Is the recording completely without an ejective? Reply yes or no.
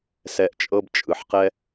no